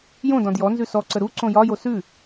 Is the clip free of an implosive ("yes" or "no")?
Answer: yes